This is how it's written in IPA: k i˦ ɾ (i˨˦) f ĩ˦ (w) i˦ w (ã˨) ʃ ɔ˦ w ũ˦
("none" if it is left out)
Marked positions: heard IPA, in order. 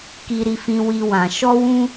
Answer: i˦, w, ã˧

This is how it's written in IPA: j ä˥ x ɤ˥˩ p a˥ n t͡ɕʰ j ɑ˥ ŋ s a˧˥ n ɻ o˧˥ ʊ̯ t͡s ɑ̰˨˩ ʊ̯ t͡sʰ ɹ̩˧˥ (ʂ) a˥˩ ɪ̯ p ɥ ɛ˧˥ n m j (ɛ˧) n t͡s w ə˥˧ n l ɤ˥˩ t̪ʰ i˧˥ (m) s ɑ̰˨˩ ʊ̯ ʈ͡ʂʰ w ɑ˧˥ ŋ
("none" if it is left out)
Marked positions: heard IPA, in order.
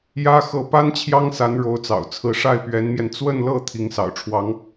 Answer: ʂ, ɛ˧, ŋ

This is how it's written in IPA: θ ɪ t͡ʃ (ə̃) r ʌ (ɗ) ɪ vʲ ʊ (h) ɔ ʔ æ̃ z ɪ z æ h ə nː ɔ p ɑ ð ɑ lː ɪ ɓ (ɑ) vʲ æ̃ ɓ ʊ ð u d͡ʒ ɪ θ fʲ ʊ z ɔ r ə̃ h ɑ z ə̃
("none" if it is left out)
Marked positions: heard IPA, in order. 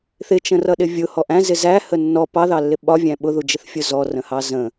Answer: ə̃, ɗ, h, ɒ

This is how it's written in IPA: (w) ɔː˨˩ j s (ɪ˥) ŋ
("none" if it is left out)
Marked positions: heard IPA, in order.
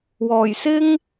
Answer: w, ɪ˥

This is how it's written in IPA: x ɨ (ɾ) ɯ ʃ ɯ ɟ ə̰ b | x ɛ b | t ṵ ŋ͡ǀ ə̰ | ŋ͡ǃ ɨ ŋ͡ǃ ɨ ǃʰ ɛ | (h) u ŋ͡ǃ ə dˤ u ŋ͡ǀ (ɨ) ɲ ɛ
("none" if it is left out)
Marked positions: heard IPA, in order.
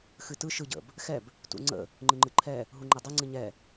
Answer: t, ɦ, ɨ

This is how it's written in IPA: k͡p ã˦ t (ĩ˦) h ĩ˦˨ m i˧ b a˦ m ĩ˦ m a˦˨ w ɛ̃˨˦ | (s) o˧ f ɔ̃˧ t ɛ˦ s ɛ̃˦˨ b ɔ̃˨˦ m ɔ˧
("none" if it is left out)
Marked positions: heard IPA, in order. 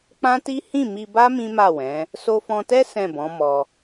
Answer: i˦, s

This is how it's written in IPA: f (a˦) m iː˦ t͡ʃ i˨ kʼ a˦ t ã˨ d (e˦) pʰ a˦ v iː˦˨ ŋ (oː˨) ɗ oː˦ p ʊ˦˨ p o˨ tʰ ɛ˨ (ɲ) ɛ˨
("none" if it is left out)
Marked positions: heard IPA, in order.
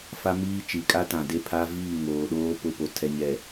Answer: a˦, e˦, oː˨, ɲ

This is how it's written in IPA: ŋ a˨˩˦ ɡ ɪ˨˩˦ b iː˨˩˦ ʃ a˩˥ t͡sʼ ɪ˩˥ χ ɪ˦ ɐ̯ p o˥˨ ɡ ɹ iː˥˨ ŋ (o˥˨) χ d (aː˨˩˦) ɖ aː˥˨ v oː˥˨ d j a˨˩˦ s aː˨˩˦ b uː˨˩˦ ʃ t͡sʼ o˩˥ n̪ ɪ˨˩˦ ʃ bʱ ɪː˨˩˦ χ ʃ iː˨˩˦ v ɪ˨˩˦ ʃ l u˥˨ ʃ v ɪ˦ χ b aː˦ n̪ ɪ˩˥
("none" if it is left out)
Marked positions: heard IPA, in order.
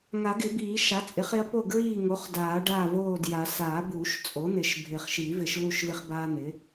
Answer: o˩˥, aː˨˩˦

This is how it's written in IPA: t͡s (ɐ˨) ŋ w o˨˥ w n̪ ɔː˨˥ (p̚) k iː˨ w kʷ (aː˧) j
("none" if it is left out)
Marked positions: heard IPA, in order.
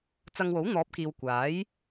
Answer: ɐ˧, p̚, aː˨˥

